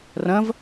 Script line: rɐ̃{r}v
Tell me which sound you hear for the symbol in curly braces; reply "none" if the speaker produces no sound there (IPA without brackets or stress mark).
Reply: none